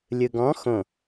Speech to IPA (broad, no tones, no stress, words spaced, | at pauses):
lʲɯɡɔ̃ xõ